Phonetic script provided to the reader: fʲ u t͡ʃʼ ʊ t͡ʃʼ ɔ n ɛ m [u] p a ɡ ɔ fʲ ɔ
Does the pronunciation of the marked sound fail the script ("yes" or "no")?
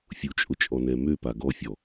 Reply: yes